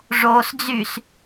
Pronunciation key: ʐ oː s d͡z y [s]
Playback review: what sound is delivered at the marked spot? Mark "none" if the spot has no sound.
s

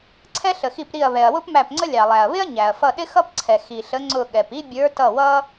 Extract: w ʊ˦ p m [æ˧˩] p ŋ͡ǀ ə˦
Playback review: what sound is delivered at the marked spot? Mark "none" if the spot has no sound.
æ˧˩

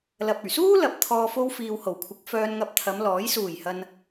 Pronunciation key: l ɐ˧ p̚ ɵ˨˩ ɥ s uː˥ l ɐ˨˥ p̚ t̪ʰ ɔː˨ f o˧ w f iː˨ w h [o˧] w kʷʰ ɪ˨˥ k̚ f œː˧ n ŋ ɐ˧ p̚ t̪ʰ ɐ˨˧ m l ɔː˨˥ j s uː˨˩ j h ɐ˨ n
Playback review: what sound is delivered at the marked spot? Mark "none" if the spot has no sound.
o˨˩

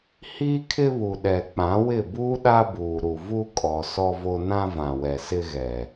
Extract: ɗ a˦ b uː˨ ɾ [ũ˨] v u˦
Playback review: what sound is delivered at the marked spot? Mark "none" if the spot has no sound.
u˨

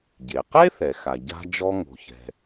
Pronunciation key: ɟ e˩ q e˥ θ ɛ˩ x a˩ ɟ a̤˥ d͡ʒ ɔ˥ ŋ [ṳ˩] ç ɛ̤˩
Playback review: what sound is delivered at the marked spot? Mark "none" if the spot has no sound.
o̤˩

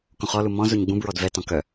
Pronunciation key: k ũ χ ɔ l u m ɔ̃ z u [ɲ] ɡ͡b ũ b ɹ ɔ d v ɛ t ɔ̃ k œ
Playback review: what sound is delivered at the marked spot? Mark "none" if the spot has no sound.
ɲ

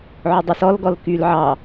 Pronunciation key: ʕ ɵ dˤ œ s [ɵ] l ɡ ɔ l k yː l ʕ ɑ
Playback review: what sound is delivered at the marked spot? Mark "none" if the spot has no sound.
ɔ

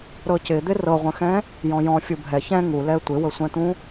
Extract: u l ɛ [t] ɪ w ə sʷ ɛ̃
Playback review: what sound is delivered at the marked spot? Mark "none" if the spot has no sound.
tʷ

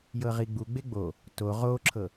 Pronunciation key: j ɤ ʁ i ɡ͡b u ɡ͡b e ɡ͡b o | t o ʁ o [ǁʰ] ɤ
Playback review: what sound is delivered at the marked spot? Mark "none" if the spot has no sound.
ǁʰ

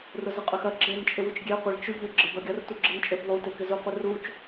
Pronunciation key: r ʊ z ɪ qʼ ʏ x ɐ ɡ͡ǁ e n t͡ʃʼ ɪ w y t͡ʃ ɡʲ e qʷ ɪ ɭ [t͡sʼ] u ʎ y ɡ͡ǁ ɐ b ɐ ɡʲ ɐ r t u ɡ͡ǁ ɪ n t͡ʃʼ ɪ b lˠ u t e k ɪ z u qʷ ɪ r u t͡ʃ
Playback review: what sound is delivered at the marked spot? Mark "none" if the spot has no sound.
t͡ʃ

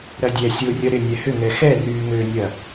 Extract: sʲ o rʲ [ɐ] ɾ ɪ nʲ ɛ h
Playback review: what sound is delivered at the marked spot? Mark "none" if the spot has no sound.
ɐ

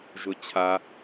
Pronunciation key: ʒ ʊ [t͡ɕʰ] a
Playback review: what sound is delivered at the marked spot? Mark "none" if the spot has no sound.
t͡ɕʰ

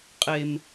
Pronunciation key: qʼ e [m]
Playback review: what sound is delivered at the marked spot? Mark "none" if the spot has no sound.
m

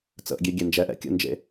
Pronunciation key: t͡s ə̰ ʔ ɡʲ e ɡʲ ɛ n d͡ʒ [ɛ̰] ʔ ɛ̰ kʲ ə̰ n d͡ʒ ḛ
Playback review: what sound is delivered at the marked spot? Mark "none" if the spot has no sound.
ɛ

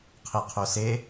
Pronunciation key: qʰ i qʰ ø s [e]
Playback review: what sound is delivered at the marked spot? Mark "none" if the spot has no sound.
e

